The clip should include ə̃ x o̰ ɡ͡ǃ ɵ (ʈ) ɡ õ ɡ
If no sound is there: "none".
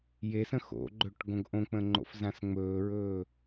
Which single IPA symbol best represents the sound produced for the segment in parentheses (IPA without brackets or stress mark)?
ʈ